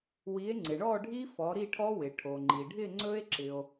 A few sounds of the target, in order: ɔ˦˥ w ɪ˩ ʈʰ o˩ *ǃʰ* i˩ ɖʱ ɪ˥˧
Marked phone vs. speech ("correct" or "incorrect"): incorrect